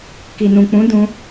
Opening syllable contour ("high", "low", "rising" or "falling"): low